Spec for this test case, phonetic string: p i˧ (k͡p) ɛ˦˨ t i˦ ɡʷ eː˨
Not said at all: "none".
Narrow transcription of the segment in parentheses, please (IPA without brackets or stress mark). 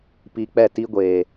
k͡p